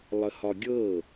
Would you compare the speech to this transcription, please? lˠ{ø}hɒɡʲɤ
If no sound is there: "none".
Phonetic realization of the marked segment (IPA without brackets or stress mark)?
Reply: ə